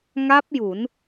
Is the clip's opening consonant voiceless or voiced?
voiced